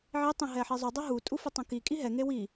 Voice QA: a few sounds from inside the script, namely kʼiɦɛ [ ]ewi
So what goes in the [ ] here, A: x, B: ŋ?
B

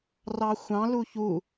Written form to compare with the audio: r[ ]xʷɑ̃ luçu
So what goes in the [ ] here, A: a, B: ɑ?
B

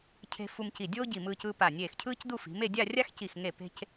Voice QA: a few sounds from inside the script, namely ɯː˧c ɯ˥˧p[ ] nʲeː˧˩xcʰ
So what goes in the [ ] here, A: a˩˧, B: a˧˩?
B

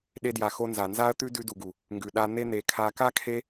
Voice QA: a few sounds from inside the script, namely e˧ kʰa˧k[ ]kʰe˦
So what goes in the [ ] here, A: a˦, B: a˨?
A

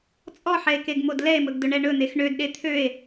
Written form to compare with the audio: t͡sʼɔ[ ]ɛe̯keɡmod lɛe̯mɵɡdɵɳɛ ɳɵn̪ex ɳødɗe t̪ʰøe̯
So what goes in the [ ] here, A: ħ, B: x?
A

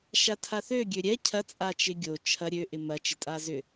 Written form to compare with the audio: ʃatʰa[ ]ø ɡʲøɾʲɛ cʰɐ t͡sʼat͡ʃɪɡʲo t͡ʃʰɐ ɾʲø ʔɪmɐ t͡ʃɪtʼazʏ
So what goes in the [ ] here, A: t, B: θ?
B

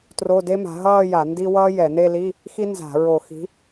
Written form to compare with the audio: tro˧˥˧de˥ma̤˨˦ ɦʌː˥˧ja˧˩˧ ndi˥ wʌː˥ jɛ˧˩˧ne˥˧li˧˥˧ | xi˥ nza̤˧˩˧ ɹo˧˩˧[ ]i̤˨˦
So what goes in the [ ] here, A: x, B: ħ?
A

